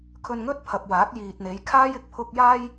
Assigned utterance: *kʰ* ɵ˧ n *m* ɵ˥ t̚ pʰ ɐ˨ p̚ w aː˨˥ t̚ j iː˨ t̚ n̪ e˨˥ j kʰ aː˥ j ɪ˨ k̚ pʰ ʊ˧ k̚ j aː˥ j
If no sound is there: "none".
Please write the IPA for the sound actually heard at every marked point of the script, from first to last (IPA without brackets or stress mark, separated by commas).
kʰ, ŋ